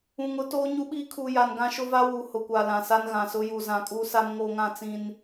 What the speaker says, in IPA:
ũ˨ ŋ ʊ˦ t oː˦ ɲ u˦ ɓ iː˦ kʰ u˨ j a˨ n ɡ ã˦ ʃ ʊ˦ v a˦ w uː˨ h ʊ˨ kʷ a˨ l ã˨ s a˦ n ɣ ã˨ s ʊ˦ j u˨ z ã˨ kʼ uː˦ s a˦ m ŋ o˦ ŋ ã˦ t͡s ĩ˦ n

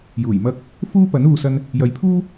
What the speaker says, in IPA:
j uː˨˩ j m ɐ˥ k̚ | f uː˥ p ɐ˨˥ n uː˧ s ɐ˥ n | j ɐ˨˧ j pʰ uː˥

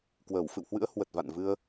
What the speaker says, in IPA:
k w əː˧˩ w f ɨ̰˧˨ w h w ɨ̰˧˥ ə̯ h w ə˨˩ t̚ v a̰˧˨ n v ɨ˧ ə̯

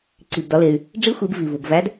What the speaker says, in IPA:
ǀ i˩ b d ɒ˩˧ l e˩ y̯ | ɖ͡ʐ i˧˥ xʷ i˩˧ b v i˩ v u˩ b v æ˧˥ d

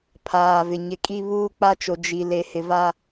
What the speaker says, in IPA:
pʰ aː˨ v ɪ˨ ɲ ɪ˨ kʼ i˦ β uː˦ k͡p a˦ t͡ʃ o˨ d͡ʒ i˨ l e˨ h ɪ˨ v a˦

